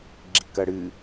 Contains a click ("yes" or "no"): yes